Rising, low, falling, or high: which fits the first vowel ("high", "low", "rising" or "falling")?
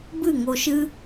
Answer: falling